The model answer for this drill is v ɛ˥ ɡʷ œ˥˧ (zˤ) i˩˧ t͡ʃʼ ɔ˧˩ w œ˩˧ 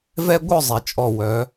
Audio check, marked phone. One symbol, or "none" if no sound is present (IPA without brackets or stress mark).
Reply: zˤ